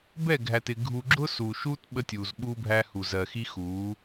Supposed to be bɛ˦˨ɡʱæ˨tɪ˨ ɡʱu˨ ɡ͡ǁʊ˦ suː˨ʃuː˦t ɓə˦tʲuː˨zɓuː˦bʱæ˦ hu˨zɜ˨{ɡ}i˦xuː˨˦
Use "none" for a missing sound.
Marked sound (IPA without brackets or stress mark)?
x